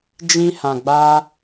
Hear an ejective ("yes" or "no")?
no